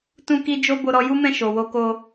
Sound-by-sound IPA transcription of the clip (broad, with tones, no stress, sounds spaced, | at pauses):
t ũ˧ k i˧ d͡ʒ o˧ b o˧ ɾ ɔ˧ j u˦ m ɛ̃˦˨ ʃ o˨ w o˧ k o˧